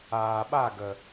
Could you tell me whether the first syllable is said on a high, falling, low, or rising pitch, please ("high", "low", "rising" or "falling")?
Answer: low